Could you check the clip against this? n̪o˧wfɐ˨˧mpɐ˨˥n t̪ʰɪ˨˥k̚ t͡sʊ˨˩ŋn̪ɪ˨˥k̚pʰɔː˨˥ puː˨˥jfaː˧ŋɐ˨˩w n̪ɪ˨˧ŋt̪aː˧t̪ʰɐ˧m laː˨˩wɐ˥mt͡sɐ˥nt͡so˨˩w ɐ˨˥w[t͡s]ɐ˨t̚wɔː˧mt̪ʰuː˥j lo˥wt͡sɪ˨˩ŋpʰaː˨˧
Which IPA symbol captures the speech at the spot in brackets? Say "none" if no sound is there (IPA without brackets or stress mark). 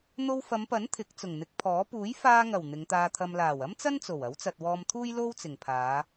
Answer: t͡s